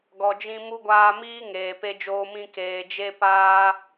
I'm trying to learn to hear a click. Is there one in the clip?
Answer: no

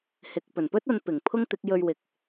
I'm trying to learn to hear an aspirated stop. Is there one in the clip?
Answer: yes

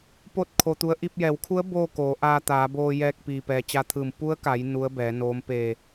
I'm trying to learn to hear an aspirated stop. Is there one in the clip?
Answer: yes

